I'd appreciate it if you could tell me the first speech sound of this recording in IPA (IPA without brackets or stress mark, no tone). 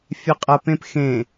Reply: fʲ